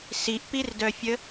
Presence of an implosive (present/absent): absent